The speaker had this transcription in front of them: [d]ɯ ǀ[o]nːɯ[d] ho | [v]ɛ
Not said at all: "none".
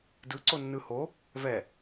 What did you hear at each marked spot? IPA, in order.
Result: d, o, none, v

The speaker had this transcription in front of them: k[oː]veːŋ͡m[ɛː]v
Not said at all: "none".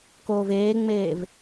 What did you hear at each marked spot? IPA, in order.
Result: oː, eː

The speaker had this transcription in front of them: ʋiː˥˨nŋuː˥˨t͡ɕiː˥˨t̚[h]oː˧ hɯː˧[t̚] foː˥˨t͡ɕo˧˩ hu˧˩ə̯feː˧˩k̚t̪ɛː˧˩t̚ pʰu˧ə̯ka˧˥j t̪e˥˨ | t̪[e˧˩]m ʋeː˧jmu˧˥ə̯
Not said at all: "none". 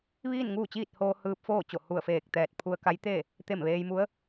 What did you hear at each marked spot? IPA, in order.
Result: h, p̚, e˧˩

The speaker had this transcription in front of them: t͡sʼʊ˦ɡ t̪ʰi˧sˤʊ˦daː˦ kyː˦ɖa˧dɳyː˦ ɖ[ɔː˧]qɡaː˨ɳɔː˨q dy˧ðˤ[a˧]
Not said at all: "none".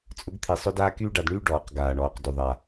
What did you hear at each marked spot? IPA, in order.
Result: ɔː˨, a˧

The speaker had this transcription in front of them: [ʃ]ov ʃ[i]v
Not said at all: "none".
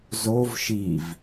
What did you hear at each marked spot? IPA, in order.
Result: z, i

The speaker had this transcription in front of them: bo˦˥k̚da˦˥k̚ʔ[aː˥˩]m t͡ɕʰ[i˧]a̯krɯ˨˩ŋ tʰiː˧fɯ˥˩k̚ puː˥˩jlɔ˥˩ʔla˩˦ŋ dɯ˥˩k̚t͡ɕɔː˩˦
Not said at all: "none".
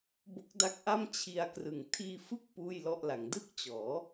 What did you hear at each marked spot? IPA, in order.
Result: a˥˩, i˧

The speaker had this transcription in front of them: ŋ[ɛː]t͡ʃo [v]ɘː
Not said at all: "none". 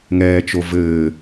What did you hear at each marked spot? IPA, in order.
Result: ɛː, v

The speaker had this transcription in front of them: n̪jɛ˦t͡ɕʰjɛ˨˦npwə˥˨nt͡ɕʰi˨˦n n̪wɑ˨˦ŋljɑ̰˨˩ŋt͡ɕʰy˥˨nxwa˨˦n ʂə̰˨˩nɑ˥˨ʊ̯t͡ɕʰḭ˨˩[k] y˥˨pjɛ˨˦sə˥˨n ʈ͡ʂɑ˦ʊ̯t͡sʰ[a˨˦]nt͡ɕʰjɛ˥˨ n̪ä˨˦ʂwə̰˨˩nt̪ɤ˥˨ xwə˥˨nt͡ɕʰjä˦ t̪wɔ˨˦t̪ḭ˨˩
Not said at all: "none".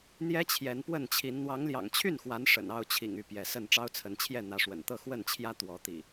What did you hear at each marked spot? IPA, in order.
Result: ŋ, ə˨˦

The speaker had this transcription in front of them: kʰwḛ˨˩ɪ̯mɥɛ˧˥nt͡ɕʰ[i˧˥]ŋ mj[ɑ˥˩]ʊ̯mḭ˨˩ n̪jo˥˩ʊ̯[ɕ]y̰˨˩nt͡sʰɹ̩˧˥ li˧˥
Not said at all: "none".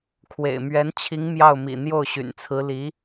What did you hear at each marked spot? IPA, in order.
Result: i˧˥, ɑ˥˩, ɕ

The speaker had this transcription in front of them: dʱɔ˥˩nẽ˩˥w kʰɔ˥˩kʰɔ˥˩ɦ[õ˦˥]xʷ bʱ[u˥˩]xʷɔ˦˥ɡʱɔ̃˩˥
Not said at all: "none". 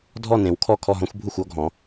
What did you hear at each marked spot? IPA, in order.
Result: ɔ̃˦˥, u˥˩

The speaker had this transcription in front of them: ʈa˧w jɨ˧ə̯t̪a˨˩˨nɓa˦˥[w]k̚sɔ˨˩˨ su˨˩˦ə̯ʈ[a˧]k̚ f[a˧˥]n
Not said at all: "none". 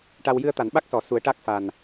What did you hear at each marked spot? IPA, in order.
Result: none, a˦˥, a˨˩

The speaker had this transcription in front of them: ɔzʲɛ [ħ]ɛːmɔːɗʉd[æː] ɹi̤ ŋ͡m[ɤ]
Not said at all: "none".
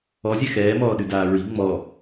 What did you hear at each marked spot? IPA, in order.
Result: x, aː, ɔ

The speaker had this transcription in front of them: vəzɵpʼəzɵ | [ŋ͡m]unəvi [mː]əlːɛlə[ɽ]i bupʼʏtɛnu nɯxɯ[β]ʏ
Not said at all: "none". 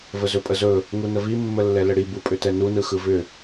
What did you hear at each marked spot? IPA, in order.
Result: ŋ, mː, ɽ, v

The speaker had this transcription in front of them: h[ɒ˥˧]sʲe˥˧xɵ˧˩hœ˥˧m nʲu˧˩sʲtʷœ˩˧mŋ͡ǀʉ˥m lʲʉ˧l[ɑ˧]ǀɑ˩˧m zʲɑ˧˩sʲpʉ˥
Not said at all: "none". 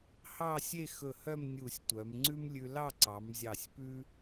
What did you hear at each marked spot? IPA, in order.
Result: ɑ˥˧, ɑ˥˧

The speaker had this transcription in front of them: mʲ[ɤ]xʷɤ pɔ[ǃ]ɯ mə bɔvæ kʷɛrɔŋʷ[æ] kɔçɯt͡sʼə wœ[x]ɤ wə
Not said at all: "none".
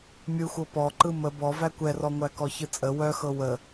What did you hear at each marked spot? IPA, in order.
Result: ɯ, ǃ, æ, x

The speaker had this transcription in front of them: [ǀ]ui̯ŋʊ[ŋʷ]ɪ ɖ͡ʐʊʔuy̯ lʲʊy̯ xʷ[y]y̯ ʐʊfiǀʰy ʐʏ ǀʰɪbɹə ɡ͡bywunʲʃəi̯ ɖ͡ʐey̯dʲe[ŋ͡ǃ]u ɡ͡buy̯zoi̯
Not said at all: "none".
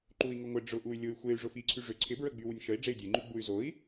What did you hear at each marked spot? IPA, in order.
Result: ǃ, ŋʷ, e, ŋ͡ǃ

